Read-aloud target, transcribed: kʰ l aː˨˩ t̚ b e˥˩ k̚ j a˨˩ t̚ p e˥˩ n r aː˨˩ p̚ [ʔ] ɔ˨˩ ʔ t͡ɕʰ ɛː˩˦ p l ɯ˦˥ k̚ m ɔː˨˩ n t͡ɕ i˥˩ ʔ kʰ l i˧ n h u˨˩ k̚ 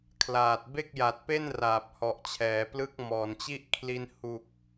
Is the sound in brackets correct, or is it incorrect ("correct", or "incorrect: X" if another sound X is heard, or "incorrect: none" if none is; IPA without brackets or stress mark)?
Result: incorrect: h